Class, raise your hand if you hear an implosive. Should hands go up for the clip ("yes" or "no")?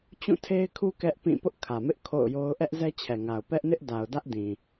no